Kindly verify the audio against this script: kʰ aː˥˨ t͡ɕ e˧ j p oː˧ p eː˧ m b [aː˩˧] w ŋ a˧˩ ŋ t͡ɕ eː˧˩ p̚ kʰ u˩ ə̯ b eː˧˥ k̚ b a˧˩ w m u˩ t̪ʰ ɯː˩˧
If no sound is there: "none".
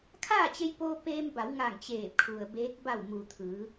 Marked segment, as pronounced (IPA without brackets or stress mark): a˩˧